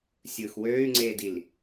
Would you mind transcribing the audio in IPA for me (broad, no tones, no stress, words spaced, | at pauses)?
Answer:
sʲɯːxwøːy̯ŋ͡ǀeːdil